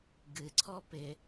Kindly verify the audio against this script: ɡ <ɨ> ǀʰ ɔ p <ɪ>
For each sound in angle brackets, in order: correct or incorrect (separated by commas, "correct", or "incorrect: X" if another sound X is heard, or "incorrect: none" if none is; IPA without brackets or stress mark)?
correct, correct